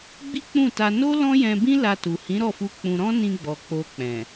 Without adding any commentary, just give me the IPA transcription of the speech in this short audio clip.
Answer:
ɡ͡bi˦k͡pũ˦˨ta˧ no˦ lɔ̃˦jɛ̃˧bĩ˦ la˧tu˨ hĩ˨˦ɾɔ˦˨fu˧ k͡pũ˧ ɾɔ̃˦nĩ˧ɡ͡bɔ˨ k͡po˧k͡pɛ̃˨

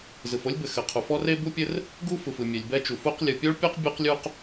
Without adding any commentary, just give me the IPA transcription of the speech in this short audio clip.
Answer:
zɯ˩fo˥lʲbɘ˩ xɘ˩qʰu˩fɔ˥ re˥bu˥pʲɘ˥r | ɡu˥fɯ˩f ɯ˩mʲɛ˩lʲbɛ˥t͡ʃu˩ fu˥qlʲɯ˩ pʲo˥ɭpʲɔ˥q bʲu˥qlʲu˥q

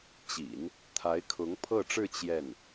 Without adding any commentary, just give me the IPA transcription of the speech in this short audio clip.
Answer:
t͡ɕḭ˨˩˦n | t̪ʰa˧˥ɪ̯kʰʊ˧˥ŋpʰɤ˥˧ʈ͡ʂɻ̩˥˧ t͡ɕjɛ˥˩n

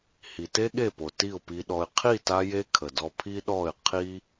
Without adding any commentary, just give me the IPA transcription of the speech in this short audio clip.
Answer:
hi˨te˦ɠe˦˨po˨ ti˦˨ʊ̯pi˧ɗɔ˧ɪ̯ qʰi˦˨ta˧je˧ kʰə˨dɔ˧ pʰi˦ɗɔ˦˨ɪ̯ qʰi˦

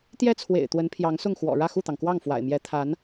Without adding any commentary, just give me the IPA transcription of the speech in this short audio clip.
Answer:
t̪jɛ˥t͡sʰwḛ˨˩ɪ̯ t̪wə˧˥npʰjɑ˧˥ŋsʊ˥˩ŋxwɔ̰˨˩ ɻä˥˧xu˥˩t̪ɑ˩ŋkwɑ˥˩ŋ fwa̰˨˩ɪ̯mjɛ˧˥ t̪ʰa˧˥n

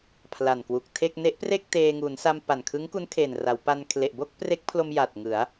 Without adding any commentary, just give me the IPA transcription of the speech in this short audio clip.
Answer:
pʰla˨˩nkwu˨˩k̚ tʰe˥˩k̚ ne˦˥ʔpreː˥˩k̚ teː˧ŋuː˩˦n sa˧mpa˨˩nkʰɯ˦˥ŋku˦˥n kʰe˨˩nra˩˦wpa˧n kʰle˨˩ʔbo˥˩k̚ pre˦˥k̚pʰlo˧mja˨˩t̚ ŋɯ˩˦a̯

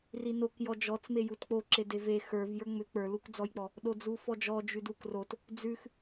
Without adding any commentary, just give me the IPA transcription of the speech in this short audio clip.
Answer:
rinok jɔd͡ʒɔt͡sme jutk͡poǁe deve xə˞v jə˞ŋ͡mʏ k͡pə˞lukd͡zɔjk͡pɔ | ɗod͡zufɔd͡ʒɔ d͡ʒʉdukrot | d͡zʉx

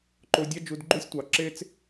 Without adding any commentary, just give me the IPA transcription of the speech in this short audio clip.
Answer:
ǃo˧dʲɑ˦d͡ʒu˧d ɡ͡ǃu˦sʲtʷɑ˨ ǁe˦t͡s

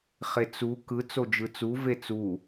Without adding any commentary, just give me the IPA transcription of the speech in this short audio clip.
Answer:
χet͡su kɯ t͡sod͡ʒɯt͡su vet͡su

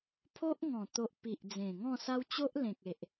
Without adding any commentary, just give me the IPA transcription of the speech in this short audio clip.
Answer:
pʰo˦ʔŋɔ̃˨˩ t̪o˨ʔ pi˨ʔd͡zẽ˨˩ŋɔ̃˥˧sa˦w t͡ɕo˦ʔlẽ˨k̚e˨ʔ

